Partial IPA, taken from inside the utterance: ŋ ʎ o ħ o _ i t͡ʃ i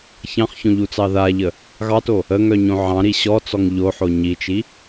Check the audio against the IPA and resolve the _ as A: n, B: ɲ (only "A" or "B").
B